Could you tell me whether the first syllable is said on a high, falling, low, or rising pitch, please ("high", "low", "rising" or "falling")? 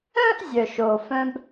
high